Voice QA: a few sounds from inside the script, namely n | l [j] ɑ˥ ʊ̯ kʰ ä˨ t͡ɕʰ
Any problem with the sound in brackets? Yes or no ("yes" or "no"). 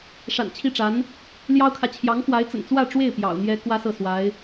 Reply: no